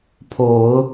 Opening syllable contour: low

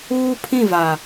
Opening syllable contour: high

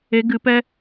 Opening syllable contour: rising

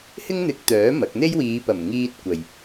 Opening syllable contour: high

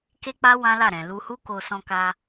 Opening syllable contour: high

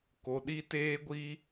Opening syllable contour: low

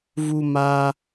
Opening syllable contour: high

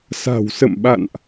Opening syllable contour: low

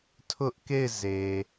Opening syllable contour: high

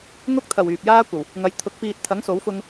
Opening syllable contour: high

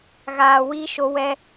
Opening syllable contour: low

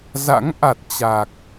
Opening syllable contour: rising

